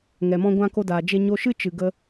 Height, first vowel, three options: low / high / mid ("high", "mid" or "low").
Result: mid